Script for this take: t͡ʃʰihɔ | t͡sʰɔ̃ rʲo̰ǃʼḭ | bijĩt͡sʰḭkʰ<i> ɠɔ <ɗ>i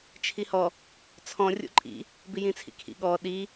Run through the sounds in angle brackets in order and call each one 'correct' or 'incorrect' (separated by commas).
incorrect, correct